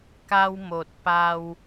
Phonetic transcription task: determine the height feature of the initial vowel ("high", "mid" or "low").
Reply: low